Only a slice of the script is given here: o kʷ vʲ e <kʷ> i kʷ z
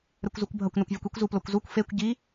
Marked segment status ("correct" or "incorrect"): correct